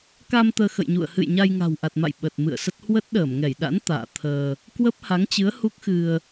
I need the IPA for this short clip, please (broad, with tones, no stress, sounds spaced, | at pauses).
k a˧ m t̪ əː˧ x ə̰˧˨ j ɲ ṵ˧˨ ə̯ h ɨ̰˧˨ j ɲ a˧ j ŋ a̤˨˩ w ʔ a˨˩ t̚ m a̰˧˨ j ɓ ə˨˩ t̚ m ɨ̰˧˨ ə̯ s ə˦˥ t̚ h w ə˦˥ t̚ ɗ əː˧˩ m ŋ ɛ˧˩ j ɗ a̰˧˥ n t̪ a̰ː˧˨ t̪ʰ əː˧ | k w ə˦˥ p̚ h a˨˦ ŋ t͡ɕ ɨ˨˦ ə̯ h u˦˥ k̚ x ɨ˧ ə̯